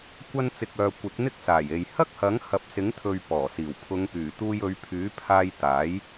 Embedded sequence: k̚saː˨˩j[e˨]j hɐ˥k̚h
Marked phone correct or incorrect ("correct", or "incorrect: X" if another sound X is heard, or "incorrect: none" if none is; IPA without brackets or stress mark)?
correct